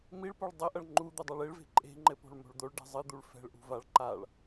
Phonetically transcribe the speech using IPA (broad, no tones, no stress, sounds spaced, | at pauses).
m i ɭ p o ɭ dˤ ɘ ʔ ɐ ɭ ŋ͡ǃ u d̪ ɛ dˤ a ɭ e ɭ v e̤ ǃʼ e̤ ŋ͡ǃ ɘ p o̤ ɭ m o̤ ɭ d̪ o ɭ ɖ ɛ̤ zˤ ɨ d̪ u ɭ f ɛ̤ ɭ ʔ ṳ v a ɭ ǃ a ɭ